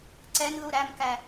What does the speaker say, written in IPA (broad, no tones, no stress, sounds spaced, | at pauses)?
ǀ ɛ n ð u ɾ æ m k æ